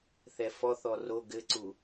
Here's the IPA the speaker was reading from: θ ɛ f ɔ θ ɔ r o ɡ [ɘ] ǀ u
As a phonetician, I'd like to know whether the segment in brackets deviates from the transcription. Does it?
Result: no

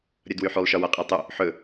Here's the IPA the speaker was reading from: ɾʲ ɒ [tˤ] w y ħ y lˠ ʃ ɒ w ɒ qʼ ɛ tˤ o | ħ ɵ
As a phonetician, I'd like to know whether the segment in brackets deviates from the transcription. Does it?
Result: yes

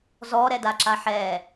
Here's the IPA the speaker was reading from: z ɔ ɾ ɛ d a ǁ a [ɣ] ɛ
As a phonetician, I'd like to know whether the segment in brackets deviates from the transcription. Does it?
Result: yes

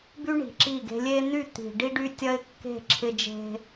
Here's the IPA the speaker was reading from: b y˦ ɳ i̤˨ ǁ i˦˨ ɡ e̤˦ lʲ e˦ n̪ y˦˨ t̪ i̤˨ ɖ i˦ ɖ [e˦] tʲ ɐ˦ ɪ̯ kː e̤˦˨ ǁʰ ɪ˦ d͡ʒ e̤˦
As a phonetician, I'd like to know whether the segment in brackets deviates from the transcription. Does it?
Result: yes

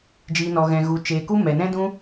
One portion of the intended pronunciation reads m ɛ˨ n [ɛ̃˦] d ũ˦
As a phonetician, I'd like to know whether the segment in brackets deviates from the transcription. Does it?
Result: no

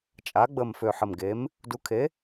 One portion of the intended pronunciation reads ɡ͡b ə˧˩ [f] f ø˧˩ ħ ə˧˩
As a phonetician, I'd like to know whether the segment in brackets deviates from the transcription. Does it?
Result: yes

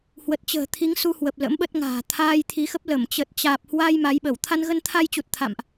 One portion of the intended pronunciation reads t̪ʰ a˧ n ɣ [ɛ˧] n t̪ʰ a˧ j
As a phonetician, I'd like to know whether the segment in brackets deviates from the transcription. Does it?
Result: yes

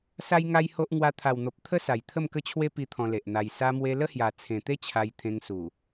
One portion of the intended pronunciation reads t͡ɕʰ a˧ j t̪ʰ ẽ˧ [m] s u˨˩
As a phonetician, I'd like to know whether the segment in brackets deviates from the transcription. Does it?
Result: yes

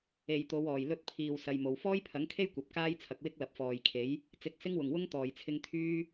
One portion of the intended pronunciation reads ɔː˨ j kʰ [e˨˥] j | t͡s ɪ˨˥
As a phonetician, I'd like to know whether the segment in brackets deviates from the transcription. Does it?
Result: no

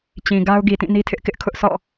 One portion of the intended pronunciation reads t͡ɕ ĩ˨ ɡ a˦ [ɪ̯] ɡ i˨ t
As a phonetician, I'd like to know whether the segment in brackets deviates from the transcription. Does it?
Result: yes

